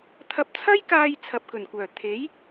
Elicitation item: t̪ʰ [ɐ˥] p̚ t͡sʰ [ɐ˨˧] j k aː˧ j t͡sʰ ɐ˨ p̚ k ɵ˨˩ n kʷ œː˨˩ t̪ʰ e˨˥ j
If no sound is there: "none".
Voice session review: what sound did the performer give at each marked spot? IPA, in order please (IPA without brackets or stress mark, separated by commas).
ɐ˧, ɐ˥